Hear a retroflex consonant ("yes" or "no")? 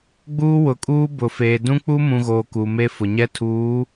no